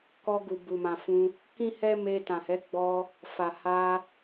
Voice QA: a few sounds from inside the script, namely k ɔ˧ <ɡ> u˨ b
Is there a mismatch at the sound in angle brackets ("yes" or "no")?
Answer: no